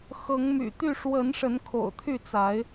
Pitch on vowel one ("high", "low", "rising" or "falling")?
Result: rising